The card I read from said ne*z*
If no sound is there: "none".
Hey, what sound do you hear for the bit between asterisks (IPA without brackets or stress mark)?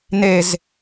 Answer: z